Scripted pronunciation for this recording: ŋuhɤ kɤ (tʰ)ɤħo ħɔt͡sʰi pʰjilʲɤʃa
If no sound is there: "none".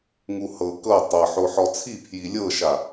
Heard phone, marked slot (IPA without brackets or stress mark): tˤ